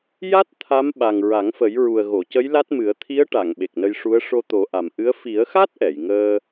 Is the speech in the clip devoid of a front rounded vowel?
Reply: yes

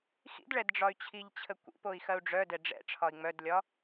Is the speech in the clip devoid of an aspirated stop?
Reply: no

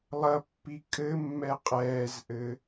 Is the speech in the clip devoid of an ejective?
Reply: no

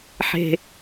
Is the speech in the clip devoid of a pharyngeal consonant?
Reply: no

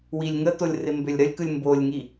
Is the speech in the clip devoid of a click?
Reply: yes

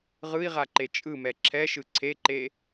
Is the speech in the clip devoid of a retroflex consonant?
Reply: yes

